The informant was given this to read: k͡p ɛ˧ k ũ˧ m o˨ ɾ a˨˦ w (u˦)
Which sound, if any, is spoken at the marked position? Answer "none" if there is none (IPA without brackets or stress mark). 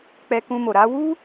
u˦